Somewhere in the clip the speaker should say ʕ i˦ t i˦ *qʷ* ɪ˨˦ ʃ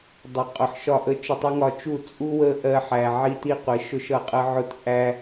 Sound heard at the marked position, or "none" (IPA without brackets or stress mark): qʷ